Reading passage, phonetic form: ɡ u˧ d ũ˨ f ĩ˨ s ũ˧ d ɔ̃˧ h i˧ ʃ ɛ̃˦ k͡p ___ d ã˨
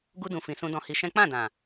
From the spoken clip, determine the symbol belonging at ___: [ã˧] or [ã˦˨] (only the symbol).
ã˦˨